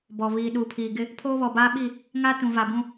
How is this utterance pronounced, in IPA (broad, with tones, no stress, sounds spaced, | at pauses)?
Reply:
b ɔ˨ β iː˨ ɗ u˨ pʰ iː˨ ɡ ɪ˦ | pʰ oː˦ β ɔ˨ b aː˦ ɓ i˦˨ | ŋ a˦ t ũ˨ v a˨ b ũ˦